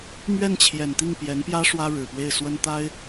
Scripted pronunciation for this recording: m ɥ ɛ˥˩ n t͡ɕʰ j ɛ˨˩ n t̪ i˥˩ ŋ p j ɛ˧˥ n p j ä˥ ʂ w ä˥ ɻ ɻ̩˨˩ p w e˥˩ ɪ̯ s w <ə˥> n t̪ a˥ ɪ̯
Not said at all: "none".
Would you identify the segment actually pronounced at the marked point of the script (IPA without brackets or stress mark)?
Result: ə˥